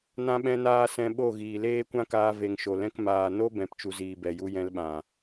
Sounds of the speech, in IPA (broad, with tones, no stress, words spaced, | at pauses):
nã˦ɓɛ̃˦naː˦ sɛ̃˧ɓo˦˨ ɣiː˨leː˦kʷã˦kaː˧ ve˨ŋʃo˨lɛ̃˧k maː˨no˦ bɛ̃˨˦pt͡ʃu˨ziː˨ bɛ˨ju˧jɛ̃˧lɓã˨